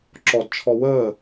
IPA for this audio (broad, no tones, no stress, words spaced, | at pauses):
ǁɔdt͡ʃʰɔ wəː